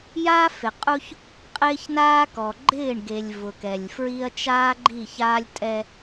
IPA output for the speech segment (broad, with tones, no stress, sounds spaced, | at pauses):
j a˦ f ɪ˨ qʼ u˦ ç | qʼ ɪː˦ ç n aː˦ k ɔ˨ ɡ͡ǃ ɪː˦˨ ɳ ɡ e˨ lʲ v ʊ˨ k ɛ˨ lʲ f ɹ i˦ ɐ̯ t͡ʃ aː˦ ɡ͡ǃ i˦˨ ç aː˦ lʲ tʼ ɛ˦